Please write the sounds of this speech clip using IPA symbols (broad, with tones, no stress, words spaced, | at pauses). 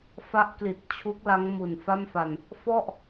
fa˦˥ʔkli˨˩t̚t͡ɕʰu˦˥k̚la˦˥ŋ mu˨˩nfa˥˩mfa˧n | fɔ˥˩ʔ